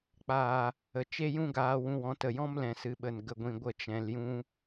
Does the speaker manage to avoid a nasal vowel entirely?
no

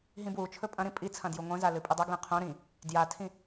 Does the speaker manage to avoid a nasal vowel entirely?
no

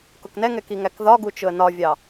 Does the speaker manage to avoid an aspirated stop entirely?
yes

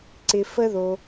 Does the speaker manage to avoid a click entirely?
no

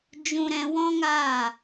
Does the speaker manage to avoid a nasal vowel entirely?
no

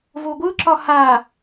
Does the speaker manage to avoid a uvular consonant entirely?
yes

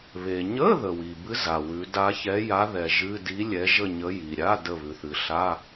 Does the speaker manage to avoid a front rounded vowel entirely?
yes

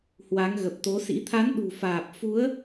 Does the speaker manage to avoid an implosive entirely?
no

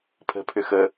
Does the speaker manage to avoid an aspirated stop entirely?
no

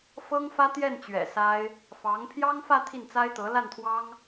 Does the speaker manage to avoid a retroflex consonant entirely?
yes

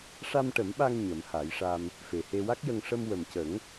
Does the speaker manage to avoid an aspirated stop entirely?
yes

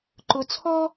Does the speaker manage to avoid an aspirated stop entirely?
no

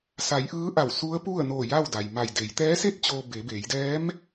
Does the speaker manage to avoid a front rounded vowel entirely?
yes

